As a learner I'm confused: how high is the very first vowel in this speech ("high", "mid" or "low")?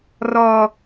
mid